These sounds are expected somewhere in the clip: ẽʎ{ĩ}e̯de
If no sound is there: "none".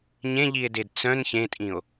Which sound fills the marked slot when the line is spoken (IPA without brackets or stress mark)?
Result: i